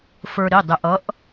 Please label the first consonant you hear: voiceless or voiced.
voiceless